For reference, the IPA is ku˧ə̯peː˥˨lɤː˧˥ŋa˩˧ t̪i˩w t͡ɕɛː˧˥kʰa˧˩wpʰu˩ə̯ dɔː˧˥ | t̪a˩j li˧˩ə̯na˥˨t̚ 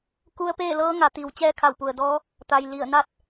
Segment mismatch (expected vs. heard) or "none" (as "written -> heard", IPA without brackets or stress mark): pʰ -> p